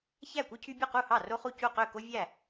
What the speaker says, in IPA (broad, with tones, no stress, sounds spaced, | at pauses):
ç æ˥˩ kʷ ɯ˦ cʰ y˦ bʲ u˥˩ q u˥˩ h ɑ˥˩ r o˦ χ u˥˩ c u˥˩ q ø˥˩ k o˦ vʲ æ˥˩